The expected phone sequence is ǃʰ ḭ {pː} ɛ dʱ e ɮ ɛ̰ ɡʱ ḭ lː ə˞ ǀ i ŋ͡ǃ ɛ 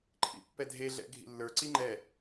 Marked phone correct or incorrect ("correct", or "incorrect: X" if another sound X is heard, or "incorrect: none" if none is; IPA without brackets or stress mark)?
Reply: correct